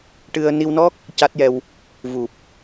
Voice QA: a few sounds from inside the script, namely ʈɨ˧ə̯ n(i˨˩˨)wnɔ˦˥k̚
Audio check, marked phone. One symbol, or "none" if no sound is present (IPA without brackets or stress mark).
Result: i˧